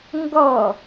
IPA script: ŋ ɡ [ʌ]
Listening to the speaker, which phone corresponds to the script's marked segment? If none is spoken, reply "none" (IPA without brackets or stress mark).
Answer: ʌ